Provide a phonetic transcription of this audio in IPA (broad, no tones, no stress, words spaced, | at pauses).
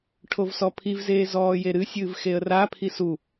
ʈʰovsɔpʰivzeː zɔːjeɾɨsʲɨːv xeə̯rapʰi su